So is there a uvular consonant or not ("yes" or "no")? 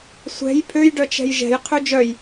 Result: yes